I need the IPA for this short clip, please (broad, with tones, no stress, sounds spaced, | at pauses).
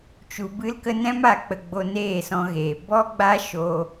t͡ʃ u˧ b ɨ˦ l k ə˦ n ɛ̃˦ m a˧ k͡p ə˧ ɡ͡b o˧ n eː˦˨ s ɔ̃˧ ɣ eː˨ b ɔ˦ ɡ͡b a˦ ʃ o˧